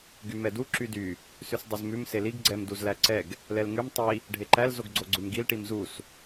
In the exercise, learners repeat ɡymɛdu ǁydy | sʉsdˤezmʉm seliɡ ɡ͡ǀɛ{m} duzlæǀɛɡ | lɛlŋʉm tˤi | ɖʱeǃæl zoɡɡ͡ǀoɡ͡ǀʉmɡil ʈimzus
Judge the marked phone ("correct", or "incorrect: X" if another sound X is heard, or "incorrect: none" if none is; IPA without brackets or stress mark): correct